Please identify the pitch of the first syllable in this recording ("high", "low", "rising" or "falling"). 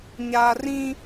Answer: low